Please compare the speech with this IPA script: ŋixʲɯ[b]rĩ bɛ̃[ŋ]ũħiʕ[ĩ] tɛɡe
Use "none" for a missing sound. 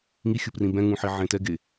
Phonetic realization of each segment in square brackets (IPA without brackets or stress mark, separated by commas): p, ŋ, ẽ